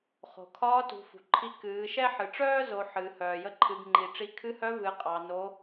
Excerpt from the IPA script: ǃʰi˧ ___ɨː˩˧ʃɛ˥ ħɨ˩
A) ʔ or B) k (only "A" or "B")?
B